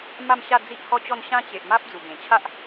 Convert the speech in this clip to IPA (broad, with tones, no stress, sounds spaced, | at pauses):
m a˥˧ m ɕ a˥˧ d͡z i˦ ʔ h ɔ˥˧ t͡ɕ ɔ˥˧ n ɕ ã˦ t͡ɕ e˨ ʔ m a˦ p̚ d͡z u˨˩ b ẽ˨˩ t͡ɕʰ a˦ ʔ